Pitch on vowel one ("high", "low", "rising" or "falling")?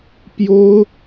high